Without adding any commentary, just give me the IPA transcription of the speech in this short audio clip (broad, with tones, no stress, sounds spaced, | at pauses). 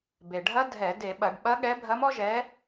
b e˩ ɖʱ ɐ˧˥ dʱ ɛ˧˩˧ d e˧˩˧ ɓ ɐ˧˩˧ ɖ ɓ ɐ˧˥ ɠ ɛ˧˥ bʱ ɐ˧˥ m ɔ˥ ʒ ɛ˧˥